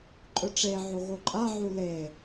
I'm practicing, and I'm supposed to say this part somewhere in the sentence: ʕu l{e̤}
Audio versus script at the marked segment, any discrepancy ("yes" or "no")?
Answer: yes